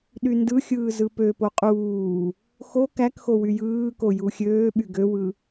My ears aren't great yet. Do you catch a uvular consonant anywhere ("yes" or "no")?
yes